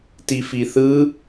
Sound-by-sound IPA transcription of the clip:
tifiθɯ

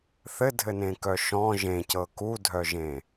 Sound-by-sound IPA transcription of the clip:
θɘdʱɘnẽkœ ʃɔ̃ ʒẽcɤ kudʱœʒẽ

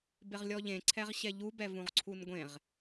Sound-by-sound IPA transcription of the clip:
bɪʁlʲɔʎẽ ǀʰɛʁɕɛʎu bɛvũʁǀʰunɡʷẽʁ

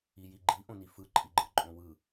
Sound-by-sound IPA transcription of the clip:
ijiɡ͡ǃi ʔõnifɯ ǃʼiɡ͡ǃɯǃʼõwɯ

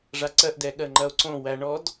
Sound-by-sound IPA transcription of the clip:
ʐaǀɜʔdɛ ɠɜŋ͡ǃɐo̯ǀõwæ ɳɔd

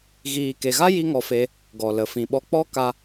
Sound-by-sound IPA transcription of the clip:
ɣiː˨ke˨ɣa˦ ji˦ŋɔ˧fe˧ | ɡɔ˨ lə˨fĩ˨ɓɔ˧k͡pɔ˦ ka˦

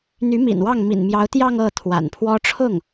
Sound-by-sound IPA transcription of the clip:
n̪y˧˥mḭ˨˩nwɑ˥˩ŋ mḭ˨˩nmjɑ˧˥ʊ̯t̪jɑ˥˧ŋ ɤ˥˩ t̪ʰwa̰˨˩npʰwɔ˥ ʈ͡ʂʰʊ˥˩ŋ

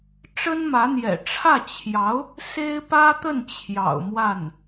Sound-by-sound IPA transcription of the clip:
ʈ͡ʂə˥nmä˧˥n̪jɛ̰˨˩ ʈ͡ʂʰä˥˩t͡ɕʰjɑ˧˥ʊ̯ | se˥ɪ̯pä˥t̪ə˥˩n t͡ɕʰjɑ̰˨˩ʊ̯mwa˥˩n

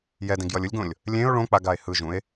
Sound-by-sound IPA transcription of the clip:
jɛdẽɡ jʌlʲɯlʲɡõlʲ | lʲẽo̯ ɭõ k͡paɡae̯ hɯʒũe̯

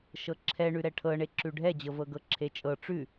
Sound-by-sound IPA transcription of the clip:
ʃɤǁʰɛ ɳʉɾɛʈʰɤɳe ǁʉɖʱɛd͡ʑɤvɤ ɡɤǁʰet͡ʃʼɤ ʈ͡ʂʉ

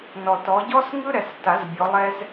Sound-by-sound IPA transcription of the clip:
nɔ˨tɔ˨˦ ɟɔ˥sŋɯ˥ɾɛ˨sta˨˩˦z bʲɔ˨˦lˠɛ˥z

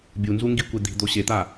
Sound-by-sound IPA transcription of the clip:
bʲunzu ŋɡikʷe d̪i̤d̪o ɕet̪a

